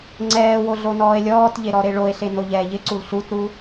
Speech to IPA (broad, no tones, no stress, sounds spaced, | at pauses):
ŋ͡ǀ ɛː w o ɮ o n ɔː e̯ lʲ ɔː t ʎ e ɾ ɔ ɾ e ɭ o e̯ ɬ e n o ʎ ɛː ʎ ɪ ǀ u l ɬ u t ɾ u